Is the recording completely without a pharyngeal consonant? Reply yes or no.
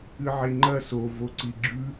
no